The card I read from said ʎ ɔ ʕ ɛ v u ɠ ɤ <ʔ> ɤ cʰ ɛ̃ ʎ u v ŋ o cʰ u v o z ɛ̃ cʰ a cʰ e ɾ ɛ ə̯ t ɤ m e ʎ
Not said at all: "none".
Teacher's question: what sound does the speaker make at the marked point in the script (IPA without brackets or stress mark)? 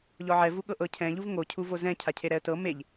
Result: ʔ